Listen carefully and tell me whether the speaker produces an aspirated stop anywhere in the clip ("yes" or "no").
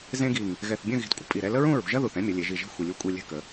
no